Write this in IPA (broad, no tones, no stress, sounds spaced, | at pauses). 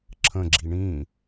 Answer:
ǁʰ ə̃ ɡ͡ǁ i ɳ ĩ